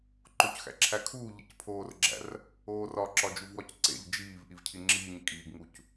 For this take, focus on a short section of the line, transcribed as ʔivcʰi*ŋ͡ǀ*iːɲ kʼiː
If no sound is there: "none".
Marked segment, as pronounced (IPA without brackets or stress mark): ŋ͡ǁ